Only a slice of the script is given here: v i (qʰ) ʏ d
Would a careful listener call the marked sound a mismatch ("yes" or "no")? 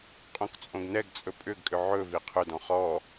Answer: no